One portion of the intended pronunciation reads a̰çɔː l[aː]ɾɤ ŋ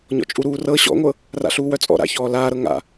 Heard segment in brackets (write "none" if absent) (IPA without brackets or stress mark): aː